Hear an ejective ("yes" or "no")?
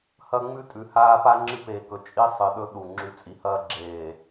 yes